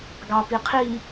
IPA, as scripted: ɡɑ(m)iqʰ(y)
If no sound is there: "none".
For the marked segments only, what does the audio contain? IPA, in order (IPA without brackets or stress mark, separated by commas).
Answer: p, i